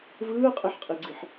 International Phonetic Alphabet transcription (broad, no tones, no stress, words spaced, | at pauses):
vɯːqʼeħqʼiɡ͡ǀiħ